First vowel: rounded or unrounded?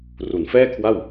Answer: rounded